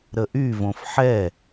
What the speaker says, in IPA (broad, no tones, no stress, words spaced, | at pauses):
ɾəʔyvõf ħɛ